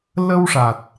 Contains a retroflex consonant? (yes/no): yes